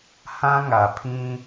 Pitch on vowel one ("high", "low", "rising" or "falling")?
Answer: high